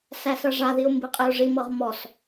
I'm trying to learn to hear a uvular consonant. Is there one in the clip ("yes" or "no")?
yes